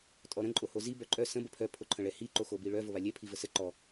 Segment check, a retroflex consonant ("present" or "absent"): present